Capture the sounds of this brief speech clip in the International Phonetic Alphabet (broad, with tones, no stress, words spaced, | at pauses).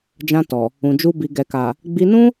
d͡ʒã˧ tɔ˨ | ũ˨d͡ʒu˧ bi˨ɡɛ˨ka˨ | ɡ͡bi˧nũ˦